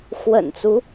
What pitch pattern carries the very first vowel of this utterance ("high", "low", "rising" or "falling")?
low